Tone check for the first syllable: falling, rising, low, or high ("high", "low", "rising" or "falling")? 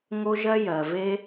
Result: high